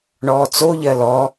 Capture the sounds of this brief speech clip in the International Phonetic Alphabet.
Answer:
ɳ ɔː t͡s o ʎ ɜ l ɔ

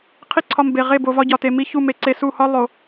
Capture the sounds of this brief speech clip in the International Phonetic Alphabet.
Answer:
qʰ i˦ ǀʰ ɒ˧ m b e˨ ʁ e˦˨ b o˧ v ɒ˦ ɟ ɒ˨ t e˨ m i˧ ç u˦˨ m e˧ ǀ e˧ s u˦˨ h ɒ˦ lˠ o˨

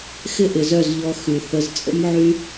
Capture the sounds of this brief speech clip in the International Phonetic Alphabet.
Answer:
x ɪ˦ ʔ ɪ˨ z œ˦˨ z ʎ ɔ˧ x y˨ θ ə˧ z t͡sʼ ə̰˦ m ʕ y˦

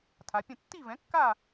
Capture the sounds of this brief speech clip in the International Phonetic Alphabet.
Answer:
tʰ a˩˧ pʲ ə̃˥˨ tː i˥˨ v ɛ̃˩˥ kː a˥˨

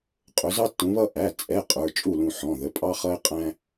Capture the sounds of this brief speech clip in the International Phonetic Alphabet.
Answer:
qʼ ʊ˨˦ z ɑ˦ tː ũ˨˦ β ʌ˦ ʔ æ˩˧˩ t͡sʼ ɛ˩˧˩ qʼ ə˞˩˧˩ t͡ʃʼ u˥˩ l ũ˧˩ ħ ɔ̃˩˧˩ ð ə˩˧˩ pʼ ɑ˦ χ ʌ˦ ɪ̯ qʼ æ̃˦

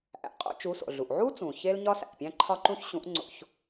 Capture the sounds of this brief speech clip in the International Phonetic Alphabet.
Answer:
ʔ æ̰˩˧ qʼ o̰˧ t͡ʃ u˩˧ s o̰˩ ɮ u˩ ʔ ʕ u˥ t͡s ũ˩ ç e˥ l ɲ ɒ˥ s æ̰˩ ʔ pʲ æ̃˥ ǃʰ ɒ˥ ǃ ũ˥ ç ɕ ũ˧˥ ʔ ŋ͡ǀ o̰˧ ç

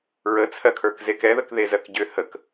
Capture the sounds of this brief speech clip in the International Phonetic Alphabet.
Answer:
ɹ ə t͡sʰ ɜ kʰ ə˞ k z e k ɛ ð ə k ð e z ɜ k ɟ ʏ h ə k

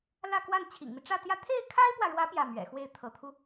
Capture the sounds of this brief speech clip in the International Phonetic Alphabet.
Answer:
l ä˥˧ k w a˥˩ n t͡ɕʰ ḭ˨˩ ŋ m i˦ ʈ͡ʂ ä˥˧ t̪ j ä˥˧ t̪ʰ e˥˩ ɪ̯ kʰ a˥ ɪ̯ p w ä˨ ɻ w ä˧˥ p j ä˥˩ m ɥ ɛ̰˨˩ x w e˥˩ ɪ̯ t̪ʰ ɤ˧˥ t̪ʰ u˧

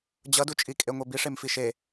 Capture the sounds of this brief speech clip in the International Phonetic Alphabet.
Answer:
d͡ʑ ʌ d u t͡ʃʼ i kʼ e ŋʷ e b i ʂ e m f i ʃ e

